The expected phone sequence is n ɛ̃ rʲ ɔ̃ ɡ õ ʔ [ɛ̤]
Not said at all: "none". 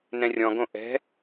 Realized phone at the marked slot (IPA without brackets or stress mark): ɛ̤